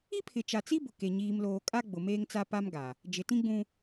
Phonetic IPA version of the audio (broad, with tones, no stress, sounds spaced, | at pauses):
i˦ pʰ ɪ˨ t͡ʃ a˨ t͡s i˦ b ʊ˨ k e˨ ɲ iː˨ m l oː˨ kʼ a˦ ɡ͡b ʊ˨ m eː˦ ŋ t͡s a˦ p a˦ m ɡ a˨ | d͡ʒ ɪ˨ t ĩ˦ ɡ͡b ũ˦